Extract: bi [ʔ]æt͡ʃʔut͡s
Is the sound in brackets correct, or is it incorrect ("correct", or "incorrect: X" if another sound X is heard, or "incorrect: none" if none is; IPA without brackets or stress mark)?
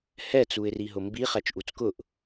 incorrect: χ